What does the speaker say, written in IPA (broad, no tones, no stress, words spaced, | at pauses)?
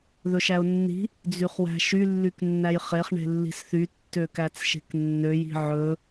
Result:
ðɵʃæʊ̯nːi̤ | d͡zyχwæ̤ʃy lːyknːæjχeχ ɳe̤lːi̤sθy tːøkæt͡sʃe̤knːøj i̤ʕɵ